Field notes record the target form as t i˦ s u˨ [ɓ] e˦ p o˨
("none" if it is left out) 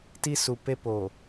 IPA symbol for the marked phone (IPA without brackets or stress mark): p